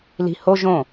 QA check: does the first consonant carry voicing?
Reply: yes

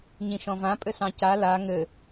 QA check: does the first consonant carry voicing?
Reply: yes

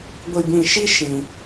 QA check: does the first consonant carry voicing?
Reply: yes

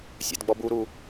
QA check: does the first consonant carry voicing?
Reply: no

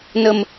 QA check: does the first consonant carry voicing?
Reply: yes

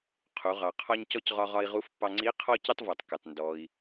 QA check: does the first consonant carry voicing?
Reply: no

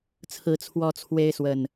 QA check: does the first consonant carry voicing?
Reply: no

